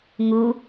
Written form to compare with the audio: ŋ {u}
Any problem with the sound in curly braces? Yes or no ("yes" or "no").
no